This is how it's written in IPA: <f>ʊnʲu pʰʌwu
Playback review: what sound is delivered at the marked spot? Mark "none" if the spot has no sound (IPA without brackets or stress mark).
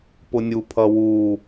p